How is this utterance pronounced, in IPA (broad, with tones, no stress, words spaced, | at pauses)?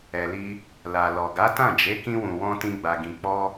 ɛ˨li˧ | la˨lɔ˨ ɡa˨˦tã˦˨d͡ʒe˨˦ kĩ˧wũ˨wɔ̃˧ tĩ˧ɡ͡ba˨ɡĩ˨ k͡pɔ˧